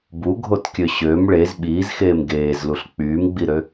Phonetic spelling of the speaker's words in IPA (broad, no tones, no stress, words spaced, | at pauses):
buɡʱotkʲø ɕøm ɭez ɓiːzxeːm ɡeːzluɬ k͡pyːmɡ͡biɾø